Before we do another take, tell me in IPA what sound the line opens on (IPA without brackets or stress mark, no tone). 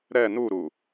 ɾ